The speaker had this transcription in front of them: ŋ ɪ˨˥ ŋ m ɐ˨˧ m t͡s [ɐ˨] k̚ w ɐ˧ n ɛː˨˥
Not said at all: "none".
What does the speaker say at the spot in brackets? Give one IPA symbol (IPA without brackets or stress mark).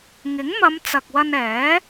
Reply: ɐ˨